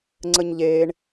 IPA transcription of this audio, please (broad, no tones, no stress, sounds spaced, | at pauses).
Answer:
ŋ͡ǀ ə ɲ ʎ eː ɳ